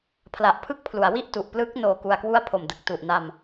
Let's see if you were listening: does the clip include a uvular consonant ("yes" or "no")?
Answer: no